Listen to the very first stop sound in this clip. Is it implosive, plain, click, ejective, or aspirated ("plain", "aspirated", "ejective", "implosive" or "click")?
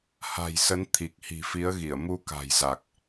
aspirated